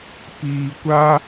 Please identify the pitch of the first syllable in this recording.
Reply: low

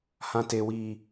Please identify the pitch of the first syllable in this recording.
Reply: high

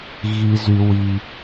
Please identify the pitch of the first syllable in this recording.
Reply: low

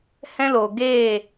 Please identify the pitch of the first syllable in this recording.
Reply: high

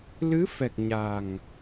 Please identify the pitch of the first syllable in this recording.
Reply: rising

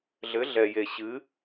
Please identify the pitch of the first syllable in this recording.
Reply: rising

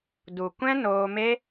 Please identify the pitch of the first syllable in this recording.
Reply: low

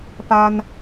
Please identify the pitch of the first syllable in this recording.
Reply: high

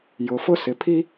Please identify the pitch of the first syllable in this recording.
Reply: low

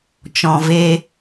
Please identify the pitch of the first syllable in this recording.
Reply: low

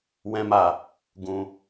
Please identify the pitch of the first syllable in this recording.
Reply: high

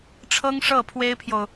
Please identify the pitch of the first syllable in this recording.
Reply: high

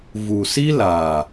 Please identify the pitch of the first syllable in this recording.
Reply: low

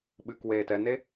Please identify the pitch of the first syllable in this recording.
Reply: low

